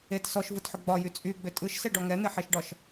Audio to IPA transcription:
et sɔʃvɯtħʏ ɡ͡bɒjy t͡sʼyɡ͡bʏ tʼɯʃsɛɖɔ ŋɛn̪eħeʃɖɒʃ

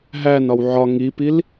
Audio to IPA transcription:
ɦæn ɒwʕɒ ŋipil

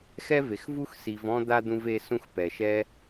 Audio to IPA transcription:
xɛ˥ve˨xvu˥x si˨vɔ̃˦ d̪a˥d̪ũ˦ve˦ sũ˦xpɛ˩ʃɛ˦

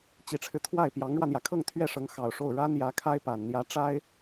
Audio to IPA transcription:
t͡ɕi˨˩ʈ͡ʂʰɻ̩˦ t̪ʰwa˥˩ɪ̯pjɑ˧˥ŋɻwä˧n̪jä˩ kʰɤ˥˧ŋt̪ʰɥɛ˥˩ ʂɤ˧˥ŋ xɑ˨˩ʊ̯ʂo˥˩ʊ̯ ɻa˥n jä˧˥kʰa˥ɪ̯pa˨˩n n̪jä˧˥ʈ͡ʂa˥ɪ̯

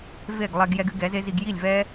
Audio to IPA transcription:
ve˦˨ɡlˠɛ˧ɡ jɛ˧ɡɨ˧ ɡɛ˨˦ze˦zi˧ɡ ji˦˨lʲvɛ˦

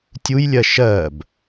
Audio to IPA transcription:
tʲujlʲɜ ʃɜb

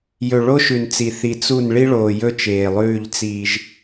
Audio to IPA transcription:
jɵ˨ɭo˦ʃʉ˨nt͡si˨ θi˨t͡su˦˨n ɭi˦ɭoː˨jɵ˦ t͡ʃeː˨lˠʉː˦˨ʎ t͡siː˦ʒ

